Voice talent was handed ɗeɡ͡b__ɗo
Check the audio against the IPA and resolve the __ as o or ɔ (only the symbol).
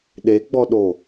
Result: ɔ